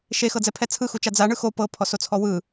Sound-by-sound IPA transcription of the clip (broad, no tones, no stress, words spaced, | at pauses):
ʃexɤd͡zɛpʰɛ t͡sʰɯxut͡ʃa d͡zaɳɯ xo pɤpʰɔsot͡sʰɔ wɯ